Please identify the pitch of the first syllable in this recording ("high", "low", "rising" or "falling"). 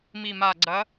low